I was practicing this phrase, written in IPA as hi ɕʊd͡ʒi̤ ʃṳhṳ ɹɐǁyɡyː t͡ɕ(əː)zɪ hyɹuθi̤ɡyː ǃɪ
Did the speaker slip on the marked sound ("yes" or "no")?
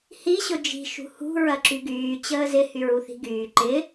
no